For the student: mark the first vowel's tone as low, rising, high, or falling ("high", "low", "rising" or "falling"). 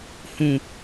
low